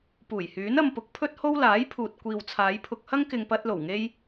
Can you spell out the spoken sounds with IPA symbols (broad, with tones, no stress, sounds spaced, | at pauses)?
p uː˨˩ j h yː˨˥ n ɐ˧ m p ʊ˨˥ k̚ pʰ ɵ˥ t̚ h o˥ w l aː˨˥ j pʰ uː˨ t̚ kʷ iː˨ w t͡sʰ aː˨˧ j pʰ ʊ˧ k̚ h ɐ˥ ŋ k ɪ˨ ŋ p ɐ˧ t̚ l o˨˩ w ŋ e˧ j